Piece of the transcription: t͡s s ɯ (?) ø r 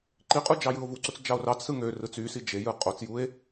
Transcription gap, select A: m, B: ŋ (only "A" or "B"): B